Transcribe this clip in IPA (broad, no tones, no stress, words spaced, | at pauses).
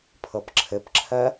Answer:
pʰɤpǁʰɘpǁʰɜ